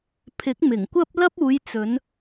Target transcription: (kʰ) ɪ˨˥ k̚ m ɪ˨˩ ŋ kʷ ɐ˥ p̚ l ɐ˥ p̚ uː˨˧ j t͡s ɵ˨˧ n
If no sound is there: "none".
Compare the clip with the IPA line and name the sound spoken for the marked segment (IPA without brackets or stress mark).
pʰ